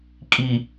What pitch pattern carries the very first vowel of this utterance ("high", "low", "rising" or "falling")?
low